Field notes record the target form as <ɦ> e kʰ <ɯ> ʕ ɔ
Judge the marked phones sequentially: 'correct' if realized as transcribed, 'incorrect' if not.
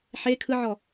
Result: incorrect: ħ, correct

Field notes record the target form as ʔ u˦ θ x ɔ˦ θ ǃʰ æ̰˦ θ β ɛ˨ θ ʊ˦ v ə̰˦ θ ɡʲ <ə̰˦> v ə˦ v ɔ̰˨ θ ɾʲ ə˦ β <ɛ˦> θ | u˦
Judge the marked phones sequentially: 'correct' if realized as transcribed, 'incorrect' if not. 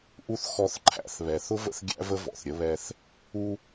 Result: incorrect: æ̰˦, correct

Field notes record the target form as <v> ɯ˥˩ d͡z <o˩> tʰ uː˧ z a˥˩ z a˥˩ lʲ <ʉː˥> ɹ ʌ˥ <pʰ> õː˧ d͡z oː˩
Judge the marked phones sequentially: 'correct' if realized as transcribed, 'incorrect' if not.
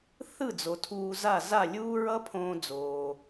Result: incorrect: θ, correct, incorrect: uː˥, correct

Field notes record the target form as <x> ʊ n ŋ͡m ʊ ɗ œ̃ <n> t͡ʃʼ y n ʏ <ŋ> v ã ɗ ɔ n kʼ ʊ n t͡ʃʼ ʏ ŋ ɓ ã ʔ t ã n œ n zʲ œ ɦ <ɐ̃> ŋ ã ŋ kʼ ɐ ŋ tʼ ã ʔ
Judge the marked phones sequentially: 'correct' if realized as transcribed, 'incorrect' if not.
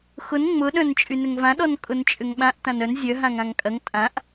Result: correct, correct, correct, incorrect: ã

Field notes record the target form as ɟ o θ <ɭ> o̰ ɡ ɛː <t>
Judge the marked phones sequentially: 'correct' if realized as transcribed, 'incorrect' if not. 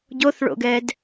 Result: correct, incorrect: d

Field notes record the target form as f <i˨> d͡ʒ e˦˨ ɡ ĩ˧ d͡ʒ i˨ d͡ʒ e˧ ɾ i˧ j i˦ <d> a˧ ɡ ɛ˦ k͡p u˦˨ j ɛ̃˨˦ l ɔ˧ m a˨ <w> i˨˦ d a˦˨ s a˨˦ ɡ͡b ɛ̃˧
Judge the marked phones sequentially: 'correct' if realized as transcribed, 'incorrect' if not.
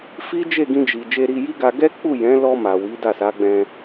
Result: incorrect: i˦, incorrect: ɡ, correct

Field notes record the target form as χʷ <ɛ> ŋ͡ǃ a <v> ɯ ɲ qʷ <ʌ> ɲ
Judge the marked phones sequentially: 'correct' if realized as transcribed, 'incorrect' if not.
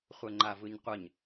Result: correct, correct, correct

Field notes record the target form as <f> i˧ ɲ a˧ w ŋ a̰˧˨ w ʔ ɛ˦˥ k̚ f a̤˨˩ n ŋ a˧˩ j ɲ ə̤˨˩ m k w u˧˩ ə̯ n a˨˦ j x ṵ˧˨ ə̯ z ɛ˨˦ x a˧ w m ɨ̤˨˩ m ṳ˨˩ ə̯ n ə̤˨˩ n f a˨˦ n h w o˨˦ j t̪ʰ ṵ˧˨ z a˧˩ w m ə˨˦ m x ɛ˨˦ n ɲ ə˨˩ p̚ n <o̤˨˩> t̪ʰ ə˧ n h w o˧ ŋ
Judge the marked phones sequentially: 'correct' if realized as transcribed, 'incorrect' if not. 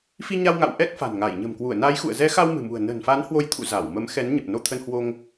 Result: correct, incorrect: o˧

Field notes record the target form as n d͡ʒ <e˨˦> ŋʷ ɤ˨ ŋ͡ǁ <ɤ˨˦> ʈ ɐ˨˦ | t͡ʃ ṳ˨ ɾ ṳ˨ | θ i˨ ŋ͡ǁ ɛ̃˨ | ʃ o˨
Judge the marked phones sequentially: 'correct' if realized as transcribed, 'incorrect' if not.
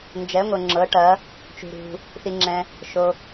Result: incorrect: ɛ˨˦, correct

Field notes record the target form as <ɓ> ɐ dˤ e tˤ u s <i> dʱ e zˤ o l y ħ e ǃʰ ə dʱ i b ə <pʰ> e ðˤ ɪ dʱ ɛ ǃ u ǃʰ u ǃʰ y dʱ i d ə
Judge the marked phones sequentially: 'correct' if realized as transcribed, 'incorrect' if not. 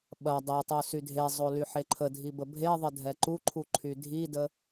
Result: correct, incorrect: y, incorrect: bʱ

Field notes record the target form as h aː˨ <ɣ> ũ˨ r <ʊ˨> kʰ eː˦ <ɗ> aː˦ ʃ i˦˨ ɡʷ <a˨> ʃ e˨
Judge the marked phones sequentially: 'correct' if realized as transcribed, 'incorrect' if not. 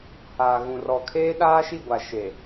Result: correct, incorrect: ɔ˨, correct, correct

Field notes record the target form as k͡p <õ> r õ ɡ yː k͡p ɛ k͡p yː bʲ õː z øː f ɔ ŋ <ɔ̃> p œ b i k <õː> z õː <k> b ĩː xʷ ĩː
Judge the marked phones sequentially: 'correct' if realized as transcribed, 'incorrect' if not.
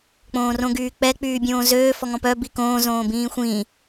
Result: incorrect: õː, correct, correct, incorrect: none

